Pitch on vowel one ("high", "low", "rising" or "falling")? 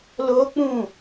high